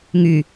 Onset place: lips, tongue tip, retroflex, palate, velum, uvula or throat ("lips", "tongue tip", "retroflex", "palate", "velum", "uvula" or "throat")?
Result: velum